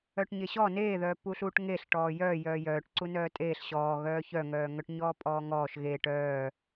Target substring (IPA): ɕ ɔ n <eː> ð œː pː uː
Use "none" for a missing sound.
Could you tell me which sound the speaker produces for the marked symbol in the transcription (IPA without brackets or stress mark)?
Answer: eː